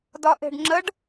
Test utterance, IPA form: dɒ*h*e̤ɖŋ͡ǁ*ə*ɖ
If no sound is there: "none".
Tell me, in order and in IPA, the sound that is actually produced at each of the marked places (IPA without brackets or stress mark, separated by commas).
ʔ, ə